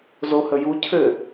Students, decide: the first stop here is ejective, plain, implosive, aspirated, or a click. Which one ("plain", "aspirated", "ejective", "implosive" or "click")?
aspirated